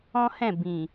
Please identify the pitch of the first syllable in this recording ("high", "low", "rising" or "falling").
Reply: high